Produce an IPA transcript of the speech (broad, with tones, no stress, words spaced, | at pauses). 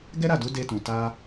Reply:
ɡɛ˦ɾa˦˨du˨˦ de˧tũ˨ta˧